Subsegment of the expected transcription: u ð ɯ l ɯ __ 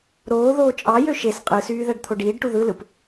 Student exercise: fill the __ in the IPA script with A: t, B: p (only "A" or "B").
B